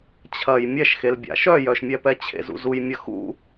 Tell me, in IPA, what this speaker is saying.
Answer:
t͡ɕʰɐj mʲɛʃxelbʲa̰ ʃœjœʃmʲɛpɛ t͡ɕʰḛzṵzujmʲɐ xṵ

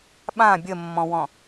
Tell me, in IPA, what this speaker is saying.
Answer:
ɓã bʲəmːɔ̃wɔ̃

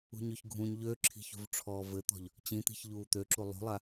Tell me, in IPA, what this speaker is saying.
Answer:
ṳɲøçɡʱũɲ ʎøǁʰi̤çṳv ʈ͡ʂʰɔːvɘt̪ɔ̤ʎ | t͡ɕĩt̪i̤ç ʎuːt̪øǁu lˠṳlˠa

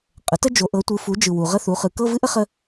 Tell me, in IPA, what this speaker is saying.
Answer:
qʼə˩˥tə˥ d͡ʒo˩˥ʔɤ˩˥ tʷɯ˩˥fu˩˥ d͡ʒɯ˨wu˨ ʁə˥θu˩˥χɯ˩˥ kɤ˧˥˧ vɨ˥ʔə˥ χə˥

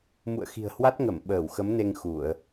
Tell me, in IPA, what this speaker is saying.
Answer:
mṵ˧˨ə̯xi̤˨˩ə̯hwa˦˥t̚ŋə˧˩m ɓəː˧˩wxə˨˦mne˧ŋ xu˧˩˨ə̯

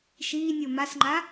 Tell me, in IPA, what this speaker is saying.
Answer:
ʃiːnʲo masŋ͡ǃa

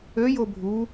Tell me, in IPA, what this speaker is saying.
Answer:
øjo bʱu

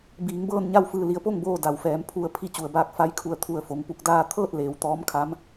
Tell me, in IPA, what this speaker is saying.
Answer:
biː˩˧ŋbɤː˥˨nɲa˥˨wfɯː˧˩ li˩ə̯po˥˨ŋboː˧˩ da˩wfɛː˩˧m pʰu˧ə̯ pʰi˧˥t͡ɕu˩ə̯baː˧k̚ fa˧˥j kʰu˧˩ə̯t̪ʰu˧˩ə̯ fo˩ŋpu˧k̚daː˧ t̪ʰɤː˥˨t̚leː˩w t̪ɔː˧˥mkʰa˧˥m

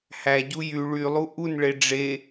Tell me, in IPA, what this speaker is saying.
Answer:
hæɟu jy ɭylˠu ʔunɭe ɖ͡ʐe

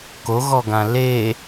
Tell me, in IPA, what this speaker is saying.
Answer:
koɣɔɡã le

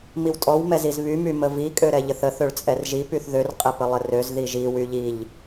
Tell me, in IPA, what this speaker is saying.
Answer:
miwtʼɔw mɛzizβy myməvi kʼøɾɛʎəθə θøɭt͡sʼɛrʒi pyθðør qʼɛpəlˠərøz ðiʒi wyʎiʎ

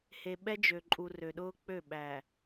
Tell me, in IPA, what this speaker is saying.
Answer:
he˨ɓɛ˦d͡ʒø˨ǃʼu˨ rø˨ɗʊː˦ k͡pø˦˨ ɓæ˨

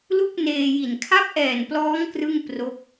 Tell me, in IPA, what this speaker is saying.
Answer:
lu˥˩k̚neː˧ji˨˩n kʰa˦˥p̚ʔɛː˨˩n plɔː˦˥ŋ krɯ˥˩ŋpro˦˥k̚

